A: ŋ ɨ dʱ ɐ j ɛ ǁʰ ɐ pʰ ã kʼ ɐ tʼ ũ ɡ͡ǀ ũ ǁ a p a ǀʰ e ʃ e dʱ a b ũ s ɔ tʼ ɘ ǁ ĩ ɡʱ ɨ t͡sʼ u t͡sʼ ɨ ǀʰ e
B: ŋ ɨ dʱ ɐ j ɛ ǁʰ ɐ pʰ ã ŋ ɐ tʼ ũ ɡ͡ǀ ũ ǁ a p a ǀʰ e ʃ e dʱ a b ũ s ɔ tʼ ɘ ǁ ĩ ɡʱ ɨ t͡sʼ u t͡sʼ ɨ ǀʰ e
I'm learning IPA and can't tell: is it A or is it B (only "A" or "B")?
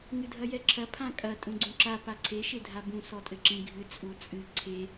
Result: A